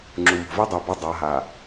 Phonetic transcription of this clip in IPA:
ŋ͡ǁu˨ mo̤˨vi˦dˤu˨bɐ˦˨ dˤa˨˦ɦa˨

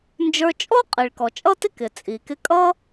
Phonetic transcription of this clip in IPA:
nd͡ʒə˞˧t͡ʃʼɔ˥ qʼi˩ɭkɔ˩t͡ʃʼʌ˥tɪ˥ kɪ˩t͡sʼi˩kɪ˧ kʼʌ˥

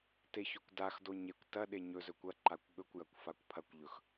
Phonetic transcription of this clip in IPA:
teçɵkʷdaxdo ɲekʷ tɐɗe ɲɵzɵ kʷɐǃakʷ ɠɵkʷjɐkʷ fakʷpʰɐkʷʎɵx

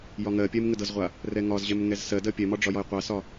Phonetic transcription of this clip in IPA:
jɒŋɜpʲɛm ŋədɤzʁʷa | rɛŋɒzʑɛm ŋɛzsɜdɜ pʲɛmɒ ɖ͡ʐɒjɒjqʷasɒ

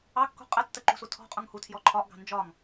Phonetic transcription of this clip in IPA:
ɑkːṳ qʼə tːəǃṳsu tʰɔ̤ qʼuŋhutʰjɔ ǃʰɒʔɡɑ̤ nd͡ʒɒŋ

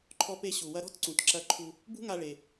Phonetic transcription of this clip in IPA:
ǃʰɔ˧pe˧ ɕu˩wɐ˧ɾɔ̤˥tǀũ˩t ǁɐ˧ǃʰu˧ | bṳ˥ŋa˧ɭe˩

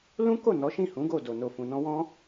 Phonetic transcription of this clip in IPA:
lũ˦ko˦˨ nɔ˨˦ʃĩ˦˨hũ˨˦ɡo˦˨ do˨no˨ fũ˨nɔ̃˧wɔ̃˦

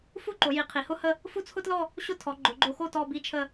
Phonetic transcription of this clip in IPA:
fu˥˧ǃo˩˧ ji˩˧ qʰi˩˧hʊ˥hə˥˧ | fu˥˧t͡sʰʊ˥tlɔ˥˧ | ɕʊ˥˧tʰɔ˩˧ ɡ͡ǃʊ˩˧ɡ͡ǃo˧xo˥˧ tɔ˥˧bi˥˧t͡ʃʰə˥˧

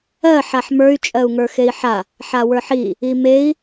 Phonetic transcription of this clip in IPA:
ɜ ħaħmə˞y̯ t͡ʃʼɜu̯ŋə˞xei̯ħa | ħawə˞ħi | imei̯

